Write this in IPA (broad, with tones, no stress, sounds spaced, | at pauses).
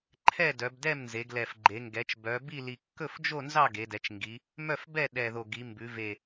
ǃʰ ɛ˥˨ d œ˩˧ b d ɛ˥˨ m n z e˩˧ ɡ l ɛ˨˩ f ɡ͡ǃ e˩˧ ŋ ɡ ɛ˩˧ t͡ʃ b œ˩˧ b i˥˨ l i˨˩ kː ɵ˥˨ f d͡ʒ o˥˨ n z ɑ˥˨ ɡ e˩˧ d ɛ˩˧ t͡ʃ ŋ ɡ i˩˧ | m œ˥˨ f b ɛ˥˨ ɗ ɛ˨˩ ð o˨˩ ɡ i˩˧ m b ʉ˩˧ v e˨˩